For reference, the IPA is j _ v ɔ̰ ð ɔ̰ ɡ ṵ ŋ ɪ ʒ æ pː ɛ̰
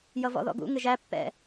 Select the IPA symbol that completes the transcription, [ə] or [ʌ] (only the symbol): ʌ